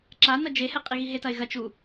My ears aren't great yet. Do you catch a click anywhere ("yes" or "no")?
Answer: yes